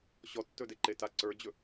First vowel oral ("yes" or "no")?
yes